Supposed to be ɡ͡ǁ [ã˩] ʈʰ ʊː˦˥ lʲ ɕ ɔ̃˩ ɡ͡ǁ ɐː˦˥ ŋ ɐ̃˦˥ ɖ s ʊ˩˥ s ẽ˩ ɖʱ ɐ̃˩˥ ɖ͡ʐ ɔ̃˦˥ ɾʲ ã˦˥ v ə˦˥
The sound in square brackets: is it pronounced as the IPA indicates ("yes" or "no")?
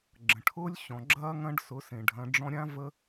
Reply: no